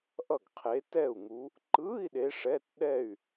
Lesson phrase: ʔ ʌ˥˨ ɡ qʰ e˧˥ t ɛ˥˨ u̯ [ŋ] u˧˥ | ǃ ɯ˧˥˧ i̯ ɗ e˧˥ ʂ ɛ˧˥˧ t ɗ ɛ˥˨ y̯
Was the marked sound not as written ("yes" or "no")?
no